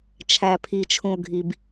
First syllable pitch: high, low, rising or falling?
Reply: low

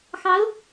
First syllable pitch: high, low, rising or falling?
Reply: rising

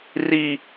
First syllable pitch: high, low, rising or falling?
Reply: high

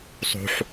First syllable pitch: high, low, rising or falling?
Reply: low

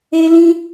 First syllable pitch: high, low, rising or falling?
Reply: high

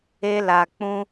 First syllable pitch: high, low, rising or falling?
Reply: high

